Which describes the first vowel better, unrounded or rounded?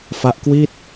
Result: unrounded